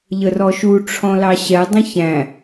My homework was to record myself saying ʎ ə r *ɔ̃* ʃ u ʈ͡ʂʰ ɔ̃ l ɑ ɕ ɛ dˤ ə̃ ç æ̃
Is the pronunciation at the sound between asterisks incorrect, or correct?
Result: incorrect